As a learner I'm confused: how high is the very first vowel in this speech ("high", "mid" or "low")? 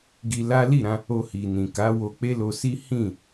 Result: high